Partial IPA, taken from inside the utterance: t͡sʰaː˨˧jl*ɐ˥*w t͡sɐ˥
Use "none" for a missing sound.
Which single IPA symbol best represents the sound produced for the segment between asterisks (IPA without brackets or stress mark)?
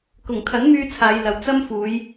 ɐ˨